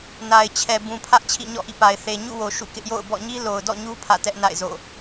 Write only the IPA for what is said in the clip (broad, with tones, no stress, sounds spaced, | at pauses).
n a˨ ɪ̯ t͡ɕʰ ɛ˨ b ũ˨ pʰ ä˦ ʔ t͡ɕʰ ḭ˦˨ ɲ ɔ̰˦˨ ʔ ḭ˦˨ p a˨ ɪ̯ θ e˨ ɲ ṵ˦˨ w o˨ ʃ ṵ˦˨ k ɪ˦ ʔ j o̰˦˨ ʊ̯ b ɔ̰˦˨ ɲ i˦ l o˨ ʊ̯ d ɔ̰˦˨ ɲ u˦ pʰ ä̰˦˨ t ɛ˦ ʔ n a̰˦˨ ɪ̯ z o̰˦˨